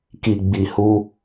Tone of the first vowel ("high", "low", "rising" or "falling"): low